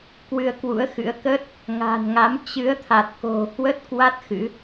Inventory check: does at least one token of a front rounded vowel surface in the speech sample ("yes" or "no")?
no